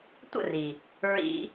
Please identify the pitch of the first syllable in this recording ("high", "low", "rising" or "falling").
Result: falling